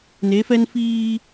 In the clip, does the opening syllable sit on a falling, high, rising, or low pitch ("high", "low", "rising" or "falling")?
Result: rising